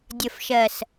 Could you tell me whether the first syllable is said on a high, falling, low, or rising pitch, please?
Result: low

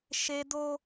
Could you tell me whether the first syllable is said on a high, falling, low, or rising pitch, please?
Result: high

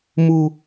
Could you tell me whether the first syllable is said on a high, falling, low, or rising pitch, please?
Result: high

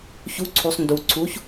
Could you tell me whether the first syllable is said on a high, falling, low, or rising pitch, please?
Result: rising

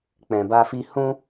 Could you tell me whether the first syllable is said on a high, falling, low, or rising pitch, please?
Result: low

